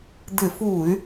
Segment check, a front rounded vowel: present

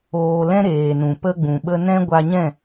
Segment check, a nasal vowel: present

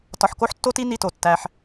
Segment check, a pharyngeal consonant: present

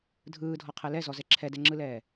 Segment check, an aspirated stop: present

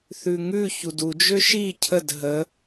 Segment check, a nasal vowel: absent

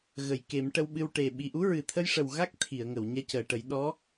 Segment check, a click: absent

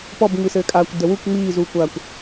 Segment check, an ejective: present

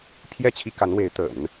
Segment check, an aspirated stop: present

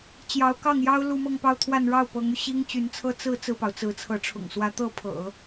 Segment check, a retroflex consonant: present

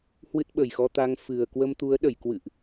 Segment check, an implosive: present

